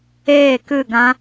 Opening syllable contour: falling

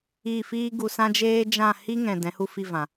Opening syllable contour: falling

